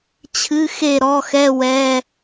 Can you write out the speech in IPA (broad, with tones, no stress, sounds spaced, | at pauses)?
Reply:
t͡ɕʰ ɨ˧˥˧ x e˥˨ ɾ ɔ˧˥˧ x ɛ˧˥˧ w ɛ˧˥˧